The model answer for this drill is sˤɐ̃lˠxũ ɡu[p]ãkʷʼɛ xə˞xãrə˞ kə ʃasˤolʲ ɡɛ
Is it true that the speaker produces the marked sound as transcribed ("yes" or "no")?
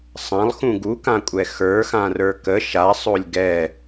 no